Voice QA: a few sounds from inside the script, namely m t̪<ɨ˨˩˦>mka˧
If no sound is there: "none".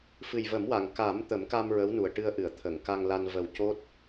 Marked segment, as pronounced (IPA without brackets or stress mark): ə˨˩˦